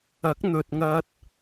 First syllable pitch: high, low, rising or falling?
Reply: rising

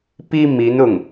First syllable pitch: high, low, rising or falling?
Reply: high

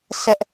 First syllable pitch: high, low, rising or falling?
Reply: high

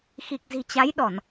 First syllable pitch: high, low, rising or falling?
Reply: low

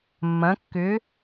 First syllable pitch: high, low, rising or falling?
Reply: rising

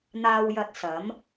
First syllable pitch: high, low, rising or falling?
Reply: low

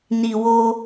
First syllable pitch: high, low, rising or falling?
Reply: low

